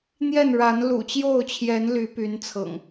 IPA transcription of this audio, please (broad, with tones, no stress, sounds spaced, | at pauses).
n̪ j ɛ˥˨ n ɻ a˨˦ n l ṵ˨˩ t͡ɕ j o˥˨ ʊ̯ t͡ɕʰ j ɛ˨˦ n l y˨˦ p y˨˦ n t͡sʰ ɤ̰˨˩ ŋ